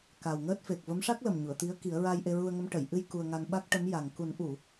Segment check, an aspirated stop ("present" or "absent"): absent